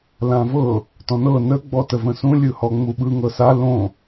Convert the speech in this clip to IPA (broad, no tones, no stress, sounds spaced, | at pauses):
l ã v ɤ | t ɔ̃ n ɤ n ə ɡ͡b ɔ t ə v ə̃ s ũ lʲ ɯ h ɔ ŋ͡m u ɓ ɯ ŋ ɤ s a l õ